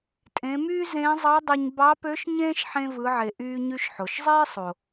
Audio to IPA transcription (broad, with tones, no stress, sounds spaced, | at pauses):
tʼ ẽ˩˧ m yː˥ z ẽː˧˥ zˤ ɑ˧˥ dˤ o˧ ɲ b ɑ˧˥ p ø˧˥ ʃ ɲ ẽː˥ ʃ ħ ẽ˧ v ɯ˩˧ ʕ e˩ ʔ yː˧ ɲ y˧ ʃ ħ o˩ ʃ zˤ eː˥ sˤ o˩